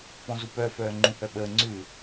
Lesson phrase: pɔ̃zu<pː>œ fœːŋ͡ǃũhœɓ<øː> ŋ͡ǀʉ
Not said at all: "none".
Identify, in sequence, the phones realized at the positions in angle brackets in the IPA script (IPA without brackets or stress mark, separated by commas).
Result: p, əː